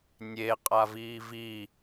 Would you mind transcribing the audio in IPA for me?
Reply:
nʲ e qʼ a v iː v i

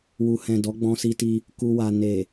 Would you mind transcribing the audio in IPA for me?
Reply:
w u˨ h ɛ̃˨ d ɔ˨˦ ɡ͡b ɔ̃˧ s i˧ t i˧ | k u˧ w a˨ n e˨

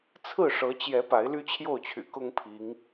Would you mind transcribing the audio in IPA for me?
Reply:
t͡sʰ ɹ̩˥˨ ʂ ɤ˨˦ t͡ɕ j ɛ˨˦ p a˨˦ ɪ̯ l y˦ t͡ɕʰ j o˥˨ ʊ̯ t͡ɕʰ y̰˨˩ k ʊ˦ ŋ pʰ i˨˦ ŋ

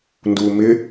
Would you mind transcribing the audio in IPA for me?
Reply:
n d uː m ɪ

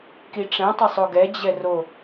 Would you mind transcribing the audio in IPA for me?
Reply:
k i ʈ͡ʂ ɛ̃ tˤ ɪ sˤ o ɡ ɛ d͡ʑ ɛ r o

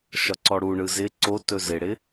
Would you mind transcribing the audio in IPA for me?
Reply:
ʃ ɒ ǀ ɔ ɽ u ɳ ɯ z ɪ ǀ o t ɵ z ɪ ɽ ɪ

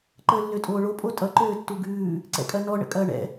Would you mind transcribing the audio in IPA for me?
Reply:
ǃ əː lː ø tʼ oː ɭ o pʼ o tʼ ʌ ǃ øː tː u ɡ ʉː | ǀ ɛ̰ kʼ ɐ n ɔ ɳ ə̰ kʼ ɐː ɳ ɛ̰

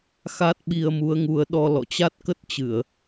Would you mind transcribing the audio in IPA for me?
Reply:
x a˦˥ t̚ ɓ i˧ ə̯ m u˨˦ ə̯ ŋ u˨˦ ə̯ ɗ ɔ˧ l ɔ̰˧˨ t͡ɕ a˦˥ t̚ k ə˦˥ t̚ t͡ɕ ɨ˧˩˨ ə̯

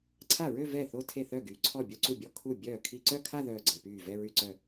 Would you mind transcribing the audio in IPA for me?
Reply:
ǀʰ a˥˩ ɹ ø˥˧ v ɛ˥˩ θ o˥˧ tʰ e˥˩ θ œ˥˩ ɡ yː˨ ǀʰ ɔ˥˩ bʲ o˥˧ ǀ u˥˩ bʲ ɔ˥˩ kʰ u˥˩ bʲ œː˥˩ kʰ i˥˧ ǀ œ˥˧ kʰ a˥˧ ð œː˥˩ ɡ͡ǀ əː˨ p yː˥˩ v ɛ˥˧ ɹ y˥˩ ǀ œ˥˩

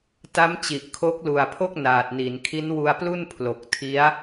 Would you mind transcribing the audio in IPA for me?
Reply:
t a˦˥ m t͡ɕ i˨˩ ʔ kʰ o˦˥ k̚ l u˨˩ a̯ pʰ o˥˩ k̚ n aː˨˩ t̚ n i˩˦ n kʰ i˦˥ n w u˧ a̯ p l u˥˩ n pʰ l o˨˩ k̚ tʰ i˦˥ a̯

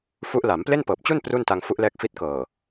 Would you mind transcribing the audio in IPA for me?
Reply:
f u˦˥ ʔ l a˩˦ m p l e˥˩ n p ɤː˨˩ p̚ t͡ɕ u˥˩ n p r u˥˩ n t a˧ ŋ f u˦˥ ʔ l ɛː˦˥ k̚ f i˦˥ t̚ k ɤː˨˩

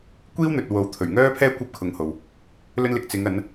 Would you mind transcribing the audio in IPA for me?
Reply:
kʷ iː˥ w n̪ ɵ˨ t̚ w o˨˥ w t̪ʰ ɵ˨˩ ɥ ŋ œː˥ pʰ ɛː˥ kʷ ɐ˥ p̚ kʰ ʊ˨˧ ŋ h o˨ w | l ɵ˥ n l ɪ˧ k̚ t͡s ɪ˨˧ ŋ ɐ˨˧ n

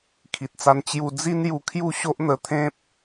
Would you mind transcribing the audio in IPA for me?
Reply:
kʰ i˨ t̚ t͡s a˧ n t͡ɕ j u˧ d͡z i˦ n j u˧ kʰ j u˥˧ ɕ o˦ ʔ n̪ ə˧ t̪ʰ ẽ˦ p̚

